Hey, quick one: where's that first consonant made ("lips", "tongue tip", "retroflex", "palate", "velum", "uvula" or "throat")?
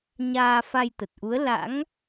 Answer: palate